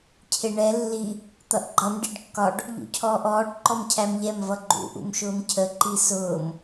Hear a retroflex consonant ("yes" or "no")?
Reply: yes